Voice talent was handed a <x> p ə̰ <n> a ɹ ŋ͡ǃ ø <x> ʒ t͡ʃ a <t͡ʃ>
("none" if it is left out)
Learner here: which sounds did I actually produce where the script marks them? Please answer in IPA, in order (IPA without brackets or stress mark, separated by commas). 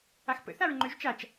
x, θ, none, t͡ʃ